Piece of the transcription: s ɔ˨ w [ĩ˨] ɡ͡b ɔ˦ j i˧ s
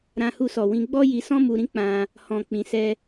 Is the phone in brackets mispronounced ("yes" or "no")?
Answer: yes